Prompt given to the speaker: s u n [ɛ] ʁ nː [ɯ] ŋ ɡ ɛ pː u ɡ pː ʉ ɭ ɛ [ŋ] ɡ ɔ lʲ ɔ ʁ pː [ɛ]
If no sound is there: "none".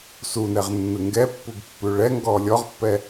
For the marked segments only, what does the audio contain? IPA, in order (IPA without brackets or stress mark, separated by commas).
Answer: ɛ, ɯ, ŋ, ɛ